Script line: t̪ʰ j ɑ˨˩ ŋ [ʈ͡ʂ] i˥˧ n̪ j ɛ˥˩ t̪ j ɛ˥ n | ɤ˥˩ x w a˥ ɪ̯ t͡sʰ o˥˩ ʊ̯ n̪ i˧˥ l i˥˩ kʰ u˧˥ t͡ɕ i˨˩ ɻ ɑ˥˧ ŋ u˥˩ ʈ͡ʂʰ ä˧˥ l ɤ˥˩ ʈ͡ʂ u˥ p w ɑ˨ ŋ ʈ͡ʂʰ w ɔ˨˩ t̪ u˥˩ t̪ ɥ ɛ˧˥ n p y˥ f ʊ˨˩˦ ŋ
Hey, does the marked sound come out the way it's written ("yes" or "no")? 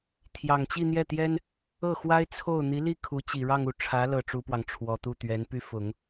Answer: no